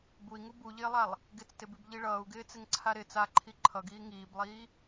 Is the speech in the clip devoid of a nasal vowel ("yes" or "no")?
yes